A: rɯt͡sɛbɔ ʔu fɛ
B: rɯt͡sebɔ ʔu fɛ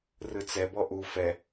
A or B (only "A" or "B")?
A